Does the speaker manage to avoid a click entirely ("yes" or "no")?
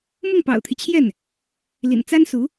yes